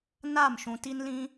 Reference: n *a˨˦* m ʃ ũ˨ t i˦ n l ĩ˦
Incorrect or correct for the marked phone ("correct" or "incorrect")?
incorrect